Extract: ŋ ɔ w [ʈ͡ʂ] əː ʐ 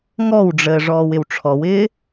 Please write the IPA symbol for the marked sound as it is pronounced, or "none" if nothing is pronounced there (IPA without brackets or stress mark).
ɖ͡ʐ